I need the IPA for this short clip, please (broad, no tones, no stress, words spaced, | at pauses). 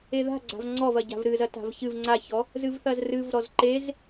eða̤ ɡ͡ǀa̤vŋ͡ǀɔvɐ ɟa̤vɾɨzɐ ta̤vçɨv ŋ͡ǀaçɔ | zɨvθɐzrɨv ɾɔzǃez